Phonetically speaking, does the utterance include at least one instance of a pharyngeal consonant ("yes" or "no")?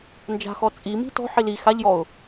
yes